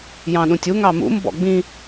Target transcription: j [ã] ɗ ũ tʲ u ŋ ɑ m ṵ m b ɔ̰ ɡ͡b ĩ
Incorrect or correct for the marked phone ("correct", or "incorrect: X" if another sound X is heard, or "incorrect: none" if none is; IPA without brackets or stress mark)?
incorrect: ɑ̃